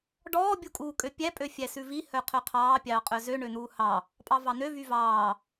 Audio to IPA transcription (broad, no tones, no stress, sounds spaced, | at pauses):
ɖ ɔː bʲ u kʼ uː kʼ ø pʲ æ pʼ ø fʲ æ s ʉ v i h œ qʰ œ qʰ ɑː pʲ ɑː qʼ œ z ø ɳ ø n̪ uː h ɑ | pʼ ɑ v ɑ n̪ ø v y v ɑː